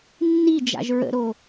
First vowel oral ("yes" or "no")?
yes